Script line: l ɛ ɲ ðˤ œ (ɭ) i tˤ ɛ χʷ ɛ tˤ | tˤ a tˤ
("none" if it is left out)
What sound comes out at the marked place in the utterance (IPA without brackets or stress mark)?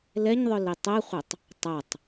l